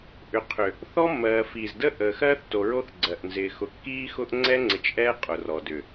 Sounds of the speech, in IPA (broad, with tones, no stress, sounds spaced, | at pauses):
ʔ ʏ˨ qʰ ʏ˨ | θ ɔ˦ mː ɜː˨ f iː˨ z d ə˦ ʔ əː˨ x ɜː˦ θ t o˨ ɹ o˦ θ ɡ͡ǀ ɜ˨ ʔ n z ɪː˨ x ʊ˨ kː iː˦ x ʊ˦ ʔ ŋ͡ǀ ɛ˦ ŋ͡ǀ ɪ˨ t͡ʃ ʔ ɛː˦ qʼ ʊ˨ r ɔ˨ d ʏ˨